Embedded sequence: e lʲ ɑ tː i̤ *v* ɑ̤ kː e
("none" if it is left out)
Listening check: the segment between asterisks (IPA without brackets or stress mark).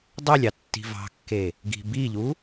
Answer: v